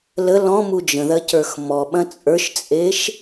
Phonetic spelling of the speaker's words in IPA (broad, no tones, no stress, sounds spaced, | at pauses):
l ə l ɔ̃ m u d͡ʒ ə̃ ð ɐ c ə˞ x m ɔ ɓ ɐ̃ t͡sʼ ə˞ ʃ t͡sʼ e ʃ